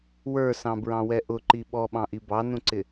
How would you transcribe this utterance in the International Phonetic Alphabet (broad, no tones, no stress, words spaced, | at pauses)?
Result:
wə˞sɑ̃bɹɑ̃wɛ ʔʊǃi ɓɔɓɑ̃ʔi bɑnũǀɪ